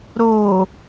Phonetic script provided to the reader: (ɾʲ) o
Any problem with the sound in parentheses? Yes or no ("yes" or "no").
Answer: yes